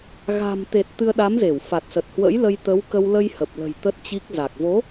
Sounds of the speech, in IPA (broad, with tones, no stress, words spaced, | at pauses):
ɣa̤˨˩mt̪e˨˩t̚ t̪ɨ˧ə̯ɗa˨˦mze˧˩w fa˨˩t̚sə˨˩t̚ hwə̰˧˥j lə˧jt̪ə˨˦wkə˧w lə˧jhə˨˩p̚lə̤˨˩j t̪ə˦˥t̚t͡ɕi˦˥k̚ za˨˩k̚vo˨˦